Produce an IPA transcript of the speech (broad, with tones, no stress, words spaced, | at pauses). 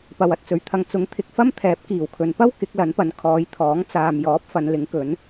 pɐ˨wɐ˨t̚t͡sɵ˨ɥ t̪ʰɐ˨ŋt͡sʊ˨˥ŋ t̪ʰɪ˨k̚fɐ˥m t̪ʰɛː˨˥p̚kiː˨˩wkʰɵ˨n pɐ˥w kɪ˨˥k̚lɐ˨˥npɐ˨˧n kʰɔː˨˧jt̪ʰɔː˨˥ŋ t͡saː˨mjɔː˨˥p̚ fɐ˨˧nlɪ˨˥ŋkɵ˨˥n